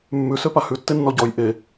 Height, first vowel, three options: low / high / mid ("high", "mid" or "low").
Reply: high